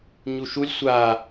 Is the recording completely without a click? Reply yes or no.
yes